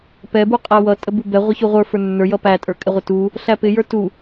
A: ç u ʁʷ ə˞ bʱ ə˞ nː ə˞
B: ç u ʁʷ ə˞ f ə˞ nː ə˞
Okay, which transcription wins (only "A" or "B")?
B